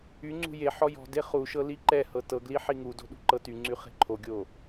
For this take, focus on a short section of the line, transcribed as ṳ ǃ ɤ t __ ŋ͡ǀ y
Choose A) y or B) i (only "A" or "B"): A